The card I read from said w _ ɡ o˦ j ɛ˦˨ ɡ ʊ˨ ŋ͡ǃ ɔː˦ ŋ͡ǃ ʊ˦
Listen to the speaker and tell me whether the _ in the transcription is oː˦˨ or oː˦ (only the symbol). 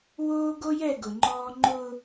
oː˦